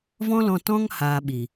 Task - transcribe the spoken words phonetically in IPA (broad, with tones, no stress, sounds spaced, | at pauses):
v ɔ̃˦ l ɔ̃˧ t ɔ̃˦ ŋ h aː˧ ɓ i˨